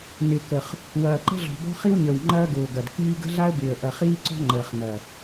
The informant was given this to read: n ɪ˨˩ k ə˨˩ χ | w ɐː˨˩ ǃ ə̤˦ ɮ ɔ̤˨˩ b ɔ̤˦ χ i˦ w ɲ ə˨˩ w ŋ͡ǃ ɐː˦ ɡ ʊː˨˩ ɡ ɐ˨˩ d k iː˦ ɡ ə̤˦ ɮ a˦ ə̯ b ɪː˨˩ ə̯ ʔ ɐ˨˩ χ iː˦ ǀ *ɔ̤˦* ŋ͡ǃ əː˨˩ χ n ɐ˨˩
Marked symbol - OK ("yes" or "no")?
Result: yes